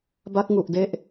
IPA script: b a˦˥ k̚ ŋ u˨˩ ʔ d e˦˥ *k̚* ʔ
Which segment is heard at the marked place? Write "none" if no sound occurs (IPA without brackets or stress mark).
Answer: none